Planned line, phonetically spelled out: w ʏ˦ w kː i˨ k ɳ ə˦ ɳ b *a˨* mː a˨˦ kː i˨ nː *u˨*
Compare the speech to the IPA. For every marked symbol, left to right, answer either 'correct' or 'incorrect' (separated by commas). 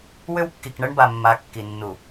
correct, correct